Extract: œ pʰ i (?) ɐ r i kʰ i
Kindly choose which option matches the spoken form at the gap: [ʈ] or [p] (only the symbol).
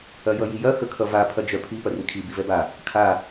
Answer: p